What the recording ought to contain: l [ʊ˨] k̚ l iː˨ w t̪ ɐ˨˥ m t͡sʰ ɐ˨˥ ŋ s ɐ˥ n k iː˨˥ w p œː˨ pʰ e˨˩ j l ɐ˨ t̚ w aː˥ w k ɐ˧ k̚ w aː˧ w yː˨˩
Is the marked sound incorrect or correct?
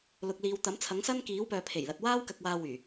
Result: correct